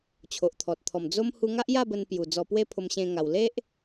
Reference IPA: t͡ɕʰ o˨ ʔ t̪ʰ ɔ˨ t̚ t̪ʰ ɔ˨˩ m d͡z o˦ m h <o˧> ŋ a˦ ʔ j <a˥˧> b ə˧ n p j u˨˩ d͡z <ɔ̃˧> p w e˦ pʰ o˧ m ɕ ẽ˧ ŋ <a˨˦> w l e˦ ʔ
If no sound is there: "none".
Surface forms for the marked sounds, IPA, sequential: u˧, a˥˧, ɔ˧, a˨˩

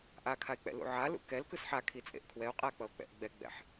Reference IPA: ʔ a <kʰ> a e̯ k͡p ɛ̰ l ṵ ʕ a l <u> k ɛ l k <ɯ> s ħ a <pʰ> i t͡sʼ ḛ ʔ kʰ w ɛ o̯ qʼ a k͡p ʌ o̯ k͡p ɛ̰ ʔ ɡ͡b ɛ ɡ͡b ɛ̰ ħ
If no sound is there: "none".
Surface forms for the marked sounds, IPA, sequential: kʰ, ṵ, ɯ, kʰ

